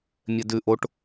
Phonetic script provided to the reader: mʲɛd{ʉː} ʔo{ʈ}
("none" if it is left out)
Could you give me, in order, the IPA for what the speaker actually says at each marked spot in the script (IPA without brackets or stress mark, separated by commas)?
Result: ʉ, ʈ